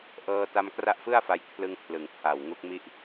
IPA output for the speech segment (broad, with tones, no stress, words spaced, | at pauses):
ʔɤː˧ta˧m kra˦˥ʔfɯ˥˩a̯fa˧jkʰlɯ˧ŋ pʰlɯ˩˦ŋpʰa˨˩wŋu˦˥k̚mi˥˩ʔ